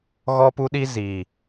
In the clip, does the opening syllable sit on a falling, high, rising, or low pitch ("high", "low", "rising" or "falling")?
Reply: high